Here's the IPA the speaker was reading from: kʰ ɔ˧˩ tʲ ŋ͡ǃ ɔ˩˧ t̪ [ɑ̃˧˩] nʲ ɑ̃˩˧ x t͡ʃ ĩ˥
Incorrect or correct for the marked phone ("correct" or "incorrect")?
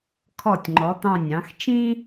correct